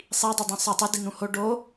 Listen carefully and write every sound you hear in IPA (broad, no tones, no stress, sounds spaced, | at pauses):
sˤ i dˤ i dˤ ũ sˤ e tˤ ɪ d i n̪ ũ h o ɖ o